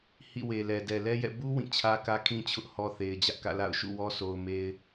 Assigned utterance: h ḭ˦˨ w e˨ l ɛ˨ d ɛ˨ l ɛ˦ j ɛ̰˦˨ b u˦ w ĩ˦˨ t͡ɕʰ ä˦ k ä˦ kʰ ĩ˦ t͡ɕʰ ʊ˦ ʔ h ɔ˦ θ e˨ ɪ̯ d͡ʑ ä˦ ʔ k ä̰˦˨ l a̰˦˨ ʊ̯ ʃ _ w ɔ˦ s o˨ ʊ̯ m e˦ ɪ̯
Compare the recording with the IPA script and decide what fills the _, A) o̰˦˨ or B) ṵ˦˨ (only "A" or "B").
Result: B